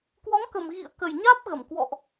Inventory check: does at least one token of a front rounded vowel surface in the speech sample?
no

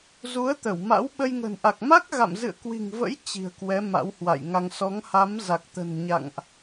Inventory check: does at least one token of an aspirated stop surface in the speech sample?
no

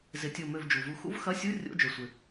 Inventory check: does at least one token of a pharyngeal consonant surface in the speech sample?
no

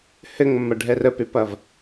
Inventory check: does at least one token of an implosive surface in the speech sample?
no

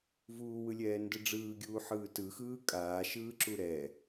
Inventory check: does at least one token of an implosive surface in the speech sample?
no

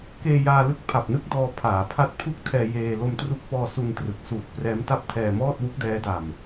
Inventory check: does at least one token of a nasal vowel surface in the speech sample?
no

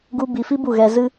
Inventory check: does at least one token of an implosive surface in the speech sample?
no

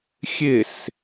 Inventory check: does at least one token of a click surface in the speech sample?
no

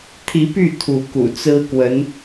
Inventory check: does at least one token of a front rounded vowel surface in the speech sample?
yes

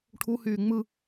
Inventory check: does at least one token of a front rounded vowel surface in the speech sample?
yes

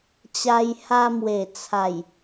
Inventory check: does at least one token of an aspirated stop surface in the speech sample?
yes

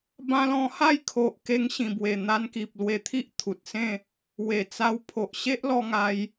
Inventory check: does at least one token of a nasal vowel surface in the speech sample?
yes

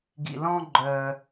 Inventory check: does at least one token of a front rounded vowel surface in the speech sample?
yes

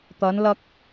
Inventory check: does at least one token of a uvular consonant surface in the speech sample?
no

